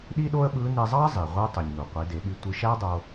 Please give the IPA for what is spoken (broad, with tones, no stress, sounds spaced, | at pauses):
ɗ i˥ ɗ o˥ ə̯ ɓ ɯ˧˥ n e˧ zˤ ɑ˥ ə̯ zˤ i˩ ʁʷ ɯ˧˥ tˤ y˩ ɲ n u˩ qʷ i˩˧ d e˩˧ ɓ y˧ tʷ ɯ˧ ʃ æ˥ dˤ o˧